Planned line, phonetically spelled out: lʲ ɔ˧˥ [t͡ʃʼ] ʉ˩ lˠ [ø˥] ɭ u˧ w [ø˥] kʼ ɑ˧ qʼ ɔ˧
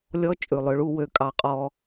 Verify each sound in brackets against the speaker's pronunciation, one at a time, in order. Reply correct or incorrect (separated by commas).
correct, incorrect, incorrect